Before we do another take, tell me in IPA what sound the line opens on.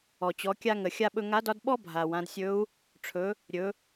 ɔ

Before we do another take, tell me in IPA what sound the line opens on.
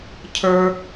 cʰ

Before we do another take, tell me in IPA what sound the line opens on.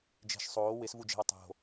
d͡ʒ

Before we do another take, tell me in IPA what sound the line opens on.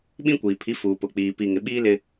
ɓ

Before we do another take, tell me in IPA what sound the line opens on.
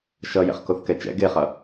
ʃ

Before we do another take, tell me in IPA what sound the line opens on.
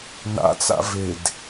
n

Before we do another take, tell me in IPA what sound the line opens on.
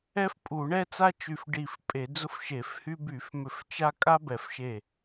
ɛ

